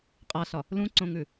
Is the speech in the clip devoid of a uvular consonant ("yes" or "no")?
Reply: no